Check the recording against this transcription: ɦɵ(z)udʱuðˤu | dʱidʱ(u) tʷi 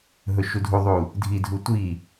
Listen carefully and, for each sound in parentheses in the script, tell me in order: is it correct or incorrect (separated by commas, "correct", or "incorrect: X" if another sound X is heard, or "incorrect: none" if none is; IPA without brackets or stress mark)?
incorrect: ʃ, correct